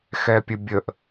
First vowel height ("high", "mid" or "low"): mid